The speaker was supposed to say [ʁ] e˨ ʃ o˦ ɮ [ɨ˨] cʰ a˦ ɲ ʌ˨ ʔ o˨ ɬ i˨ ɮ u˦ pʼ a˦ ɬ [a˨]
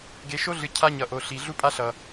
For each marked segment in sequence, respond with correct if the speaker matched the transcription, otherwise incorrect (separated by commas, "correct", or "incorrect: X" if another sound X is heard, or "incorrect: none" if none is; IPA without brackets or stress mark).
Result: incorrect: ɡ, correct, incorrect: ʌ˨